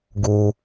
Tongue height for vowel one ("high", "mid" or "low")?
high